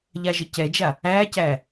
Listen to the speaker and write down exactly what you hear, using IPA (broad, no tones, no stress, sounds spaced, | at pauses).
ʎ a ʒ ə c ɛ d͡ʒ a | æː c æː